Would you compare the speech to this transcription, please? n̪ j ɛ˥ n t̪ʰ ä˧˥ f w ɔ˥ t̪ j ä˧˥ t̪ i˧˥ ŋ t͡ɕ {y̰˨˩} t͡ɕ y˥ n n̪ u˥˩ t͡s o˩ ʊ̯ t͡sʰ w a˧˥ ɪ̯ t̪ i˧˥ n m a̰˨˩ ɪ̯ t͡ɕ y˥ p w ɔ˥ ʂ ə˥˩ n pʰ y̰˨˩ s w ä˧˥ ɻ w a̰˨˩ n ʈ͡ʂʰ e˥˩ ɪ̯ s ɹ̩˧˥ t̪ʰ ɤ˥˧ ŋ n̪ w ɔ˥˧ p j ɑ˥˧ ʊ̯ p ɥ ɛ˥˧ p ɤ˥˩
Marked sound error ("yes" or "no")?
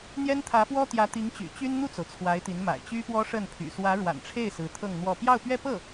no